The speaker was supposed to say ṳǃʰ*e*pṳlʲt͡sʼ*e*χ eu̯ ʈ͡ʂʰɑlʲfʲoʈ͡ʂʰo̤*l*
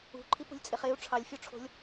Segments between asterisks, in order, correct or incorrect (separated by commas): incorrect, correct, incorrect